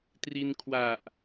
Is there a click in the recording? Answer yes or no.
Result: no